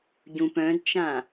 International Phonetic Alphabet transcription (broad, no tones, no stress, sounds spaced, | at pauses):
ɟ ũ p œ̃ d t͡ʃ ã